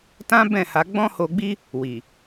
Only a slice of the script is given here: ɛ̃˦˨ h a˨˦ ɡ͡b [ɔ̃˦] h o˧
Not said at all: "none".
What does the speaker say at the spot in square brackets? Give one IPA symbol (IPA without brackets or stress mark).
ɔ̃˦